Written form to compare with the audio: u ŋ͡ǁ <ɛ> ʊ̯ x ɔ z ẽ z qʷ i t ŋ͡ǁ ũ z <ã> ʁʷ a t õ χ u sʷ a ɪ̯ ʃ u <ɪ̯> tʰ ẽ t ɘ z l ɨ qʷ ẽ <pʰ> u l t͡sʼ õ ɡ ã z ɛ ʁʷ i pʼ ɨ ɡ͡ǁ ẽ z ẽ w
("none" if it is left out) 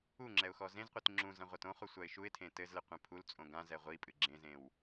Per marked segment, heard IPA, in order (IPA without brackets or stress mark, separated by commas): ɛ, ɐ̃, ɪ̯, pʰ